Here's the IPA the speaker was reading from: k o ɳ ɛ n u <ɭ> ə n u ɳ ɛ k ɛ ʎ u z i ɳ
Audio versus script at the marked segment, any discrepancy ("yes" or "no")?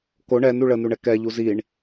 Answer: no